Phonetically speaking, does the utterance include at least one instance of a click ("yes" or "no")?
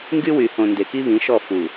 no